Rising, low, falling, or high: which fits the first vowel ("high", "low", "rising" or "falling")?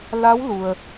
rising